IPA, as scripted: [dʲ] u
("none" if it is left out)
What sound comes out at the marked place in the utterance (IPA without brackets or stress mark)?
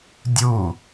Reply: dʲ